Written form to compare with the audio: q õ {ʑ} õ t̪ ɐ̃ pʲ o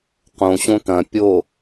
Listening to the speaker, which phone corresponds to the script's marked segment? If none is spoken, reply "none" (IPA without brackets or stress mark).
ɕ